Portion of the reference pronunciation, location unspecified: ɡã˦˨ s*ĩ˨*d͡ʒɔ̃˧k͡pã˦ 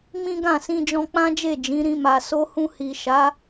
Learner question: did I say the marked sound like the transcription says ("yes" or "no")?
no